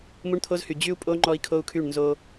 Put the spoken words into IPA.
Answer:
m u˦ ɳ t̪ʰ o˦ z h y˨ d͡ʑ y˦ u̯ pʼ o˦ ŋ͡ǃ ɔ˦ i̯ kʰ o˦ u̯ kʰ y˦˨ ɳ n z o˦

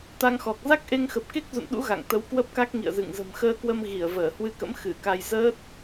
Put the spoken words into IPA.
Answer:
t̪ a˧ ŋ x ɔ˨˩ k̚ z a˦˥ k̚ ʔ e˧ ŋ x ə˨˩ p̚ k e˦˥ k̚ z ṵ˧˨ n ɗ ṵ˧˥ ɣ a̰˧˨ ŋ t̪ ə˨˦ w k w ə˦˥ p̚ k a˦˥ k̚ ŋ ḭ˧˨ ə̯ z ɨ̰˧˨ ŋ z ə̤˨˩ m x əː˧ k w ə˧ m ɣ i˧˩ ə̯ v əː˧˩ h w ɨ˧ k ə̰˧˥ m x ɨ˧˩ k a˧ j z əː˦˥ t̚

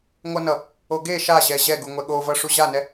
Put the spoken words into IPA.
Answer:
ŋʷ ʌ n ʌ | o ɡ e ʃ a ʑ ɛ ʑ ɛ ɡ u ŋʷ ɛ ɠ o v ʌ ʂ u ʑ a n ɛ

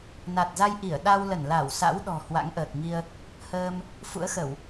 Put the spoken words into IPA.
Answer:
n a˨˩ t̚ z a˧ j ʔ i˧˩ ə̯ ɗ a˧ w l ə˧˩ n l a˧˩ w s a̰˧˥ w ɗ ɔ̤˨˩ h w a̰˧˥ ŋ ʔ əː˨˩ k̚ ŋ i˧ ə̯ | h əː˧ m | f ṵ˧˥ ə̯ x ə˧˩˨ w

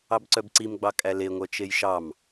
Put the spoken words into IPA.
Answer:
ɑ b ǀ œ b ǀ i m ɡ͡b ɑ kʼ æ l e ŋʷ œ t͡ʃ e j ʃ ɑ m

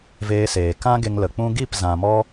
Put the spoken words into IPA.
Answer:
v eː˧ s eː˨ k ã˦ ɡ e˧ ŋ l ə˨ k͡p ũ˧ ɡ i˦˨ p z ã˨ m ɔ˧

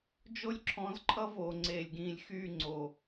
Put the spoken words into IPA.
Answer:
d͡ʒ o˦ lʲ ǁʰ ɔ̃˨˦ z ǃʰ ʌ˦ v oː˨ ŋ͡ǀ eː˨ lʲ ɡ ĩː˨ lʲ x yː˦˨ ŋ͡ǀ o˨

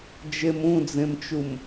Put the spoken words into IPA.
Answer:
d͡ʒ e m ũ d͡z ẽ m t͡ʃ u m

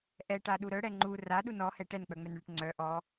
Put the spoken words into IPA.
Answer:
ʔ ɛ ʈ a ɗ u ɾ œ ɽ ɛ ŋ͡ǃ u r a ɗ u n ɔ h ɛ ʈ ɛ n k͡p œ ŋ͡m ɛ n ɭ ɛ ʈ ŋ͡ǀ œ ʔ ɔ

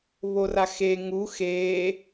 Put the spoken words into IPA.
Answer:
β o r a x e ŋ u x e

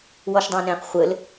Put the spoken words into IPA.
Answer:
w ɔ ʃ dˤ ẽ n ɛ̃ q χʷ ə l

